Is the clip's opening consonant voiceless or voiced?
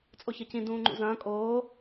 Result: voiceless